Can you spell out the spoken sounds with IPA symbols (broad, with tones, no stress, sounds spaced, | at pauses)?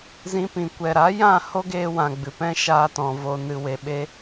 z ĩ˧ p ĩ˨ kʷ ɛ˨ ɾ a˨˦ j ã˦˨ h o˦ ɡ eː˧ w ã˨ ɡ͡b ɨ˨ p ɛ̃˦ ʃ aː˧ t ɔ̃˨ v o˨ n ɨ˨ w e˨ ɓ e˧